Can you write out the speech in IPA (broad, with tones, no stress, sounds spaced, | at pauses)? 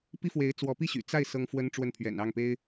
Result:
p i˥ f w e˧˥ ɪ̯ t͡s w ɔ˧˥ p i˥˩ ɕ y̰˨˩ t͡s a˥˩ ɪ̯ s ɤ˥ ŋ f w ə˥ n ʈ͡ʂ w ə˥˩ n pʰ ɥ ɛ̰˨˩ n ɑ˥˩ ŋ p e˥ ɪ̯